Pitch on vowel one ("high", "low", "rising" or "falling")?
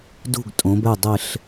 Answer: falling